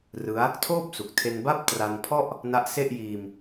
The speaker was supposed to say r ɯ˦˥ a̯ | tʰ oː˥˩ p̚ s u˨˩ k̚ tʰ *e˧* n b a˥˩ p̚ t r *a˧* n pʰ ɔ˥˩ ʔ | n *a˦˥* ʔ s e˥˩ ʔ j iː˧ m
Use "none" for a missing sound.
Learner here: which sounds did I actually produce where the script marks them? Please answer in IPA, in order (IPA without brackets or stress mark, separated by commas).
e˧, a˧, a˦˥